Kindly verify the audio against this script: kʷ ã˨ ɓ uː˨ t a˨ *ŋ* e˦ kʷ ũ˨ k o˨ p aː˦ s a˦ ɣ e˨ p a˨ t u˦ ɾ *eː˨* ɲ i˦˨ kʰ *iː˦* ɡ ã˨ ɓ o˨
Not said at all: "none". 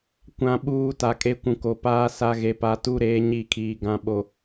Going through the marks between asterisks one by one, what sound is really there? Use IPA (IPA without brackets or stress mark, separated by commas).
kʼ, eː˦, iː˨